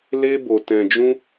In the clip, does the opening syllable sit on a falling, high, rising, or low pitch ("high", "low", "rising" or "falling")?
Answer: high